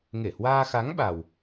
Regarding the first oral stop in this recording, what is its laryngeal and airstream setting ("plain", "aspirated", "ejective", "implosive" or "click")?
implosive